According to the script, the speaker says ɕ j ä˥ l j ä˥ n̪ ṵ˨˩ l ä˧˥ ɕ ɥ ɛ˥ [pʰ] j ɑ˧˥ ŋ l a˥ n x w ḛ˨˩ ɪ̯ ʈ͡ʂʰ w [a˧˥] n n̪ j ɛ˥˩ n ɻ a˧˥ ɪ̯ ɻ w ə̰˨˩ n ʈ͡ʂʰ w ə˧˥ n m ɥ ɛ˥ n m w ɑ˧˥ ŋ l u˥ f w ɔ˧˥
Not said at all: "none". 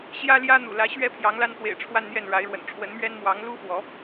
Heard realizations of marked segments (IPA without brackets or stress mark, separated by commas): pʰ, a˥˧